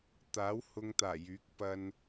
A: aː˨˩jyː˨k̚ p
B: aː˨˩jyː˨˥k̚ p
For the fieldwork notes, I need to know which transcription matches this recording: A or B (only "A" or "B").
B